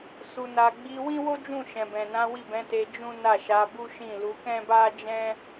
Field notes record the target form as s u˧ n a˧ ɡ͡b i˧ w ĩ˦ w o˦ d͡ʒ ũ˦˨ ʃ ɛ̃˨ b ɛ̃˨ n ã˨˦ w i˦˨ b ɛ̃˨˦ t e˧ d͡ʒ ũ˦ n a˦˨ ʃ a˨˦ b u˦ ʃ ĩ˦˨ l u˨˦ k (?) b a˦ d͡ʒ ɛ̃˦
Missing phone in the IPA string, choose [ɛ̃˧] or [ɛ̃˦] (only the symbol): ɛ̃˦